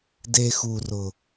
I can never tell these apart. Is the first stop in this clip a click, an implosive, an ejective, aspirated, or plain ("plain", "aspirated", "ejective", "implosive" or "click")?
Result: plain